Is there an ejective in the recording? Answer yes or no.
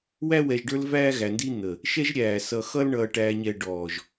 no